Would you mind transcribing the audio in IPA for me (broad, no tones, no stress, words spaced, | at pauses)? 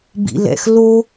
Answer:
bḭlɛ̰xlo